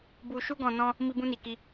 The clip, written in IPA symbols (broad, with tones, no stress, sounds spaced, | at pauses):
b u˧ ʃ u˦ ɡ ɔ̃˧ n ɔ̃˦ | m i˧ b ũ˧ n i˨ k i˧